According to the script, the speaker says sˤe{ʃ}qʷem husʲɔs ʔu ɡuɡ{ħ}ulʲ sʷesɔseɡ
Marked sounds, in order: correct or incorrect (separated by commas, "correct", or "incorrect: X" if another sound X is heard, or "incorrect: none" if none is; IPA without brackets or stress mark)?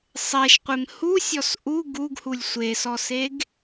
correct, incorrect: h